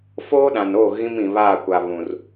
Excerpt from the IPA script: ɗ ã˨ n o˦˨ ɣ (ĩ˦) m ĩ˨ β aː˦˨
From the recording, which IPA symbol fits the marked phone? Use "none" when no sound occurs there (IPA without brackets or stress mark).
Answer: ĩ˦